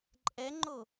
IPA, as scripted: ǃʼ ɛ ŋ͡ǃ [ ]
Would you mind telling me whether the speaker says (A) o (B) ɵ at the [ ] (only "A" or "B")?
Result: A